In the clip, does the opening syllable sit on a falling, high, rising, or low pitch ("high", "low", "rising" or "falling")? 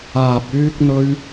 low